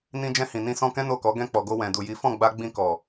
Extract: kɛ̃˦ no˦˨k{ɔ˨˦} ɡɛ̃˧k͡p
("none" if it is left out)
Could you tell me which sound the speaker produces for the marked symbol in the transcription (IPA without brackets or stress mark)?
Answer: ɔ˨˦